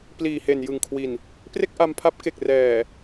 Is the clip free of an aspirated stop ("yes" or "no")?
no